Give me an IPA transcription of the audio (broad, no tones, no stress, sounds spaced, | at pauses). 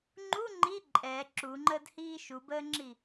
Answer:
ŋ͡ǃ u ŋ͡ǃ i ǃʼ ɛ ǁ u ŋ͡ǃ əː d h iː ʃ u b əː ŋ͡ǁ i